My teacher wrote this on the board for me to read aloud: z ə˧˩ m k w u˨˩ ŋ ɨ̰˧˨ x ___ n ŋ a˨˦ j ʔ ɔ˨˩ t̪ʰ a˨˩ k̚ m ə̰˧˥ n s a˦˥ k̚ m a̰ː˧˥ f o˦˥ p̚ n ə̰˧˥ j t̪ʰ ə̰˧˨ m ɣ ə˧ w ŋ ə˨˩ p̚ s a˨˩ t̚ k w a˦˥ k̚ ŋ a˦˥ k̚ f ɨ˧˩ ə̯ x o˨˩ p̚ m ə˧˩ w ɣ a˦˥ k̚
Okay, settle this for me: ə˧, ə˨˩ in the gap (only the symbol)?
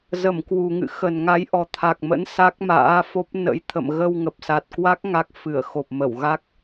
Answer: ə˨˩